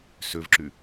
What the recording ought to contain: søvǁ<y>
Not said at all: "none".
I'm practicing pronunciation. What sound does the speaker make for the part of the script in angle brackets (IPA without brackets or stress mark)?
y